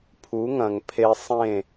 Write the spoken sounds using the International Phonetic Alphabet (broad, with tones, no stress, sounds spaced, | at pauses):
pʰ u˩˥ ŋ ɐ̃˩ ŋ pʰ e˧ sˤ ẽ˥˩